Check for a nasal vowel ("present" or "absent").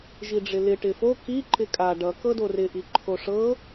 absent